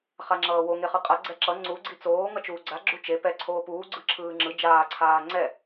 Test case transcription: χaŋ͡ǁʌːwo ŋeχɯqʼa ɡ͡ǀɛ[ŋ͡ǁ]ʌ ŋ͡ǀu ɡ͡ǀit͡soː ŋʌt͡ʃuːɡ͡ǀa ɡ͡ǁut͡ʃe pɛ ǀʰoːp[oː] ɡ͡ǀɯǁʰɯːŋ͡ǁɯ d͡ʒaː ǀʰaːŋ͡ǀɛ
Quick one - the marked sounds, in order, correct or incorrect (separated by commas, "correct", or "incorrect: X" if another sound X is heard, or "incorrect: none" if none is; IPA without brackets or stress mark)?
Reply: incorrect: ǁ, incorrect: uː